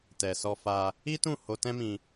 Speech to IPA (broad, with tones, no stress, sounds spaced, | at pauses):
t ɛ˨ s ɔ˧ f a˧ | i˦ t ũ˦˨ h o˧ t ɛ̃˦ m ĩ˧